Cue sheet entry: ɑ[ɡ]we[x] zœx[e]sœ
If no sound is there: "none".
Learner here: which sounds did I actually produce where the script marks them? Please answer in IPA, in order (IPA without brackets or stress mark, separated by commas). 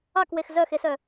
k, x, e